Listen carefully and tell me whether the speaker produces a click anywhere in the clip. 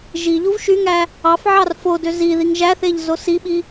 no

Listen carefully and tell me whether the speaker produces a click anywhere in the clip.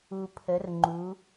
yes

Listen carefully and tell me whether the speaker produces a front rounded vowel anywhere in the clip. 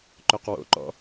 yes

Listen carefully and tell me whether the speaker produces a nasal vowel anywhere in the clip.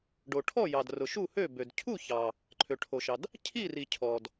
no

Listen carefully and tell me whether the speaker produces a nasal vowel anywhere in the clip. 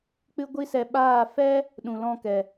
yes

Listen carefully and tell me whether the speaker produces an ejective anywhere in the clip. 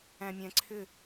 no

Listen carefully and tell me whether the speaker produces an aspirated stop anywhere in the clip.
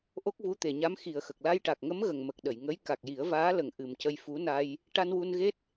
no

